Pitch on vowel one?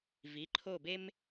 rising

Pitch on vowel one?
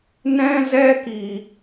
high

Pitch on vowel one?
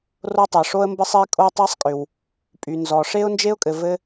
high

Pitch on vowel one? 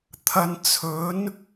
low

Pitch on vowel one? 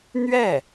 falling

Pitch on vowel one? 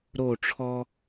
falling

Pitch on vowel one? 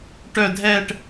low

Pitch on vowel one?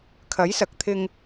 rising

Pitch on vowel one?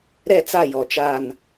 falling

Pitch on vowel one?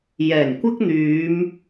low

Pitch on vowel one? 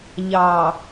low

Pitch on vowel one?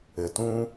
low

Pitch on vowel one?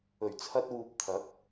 low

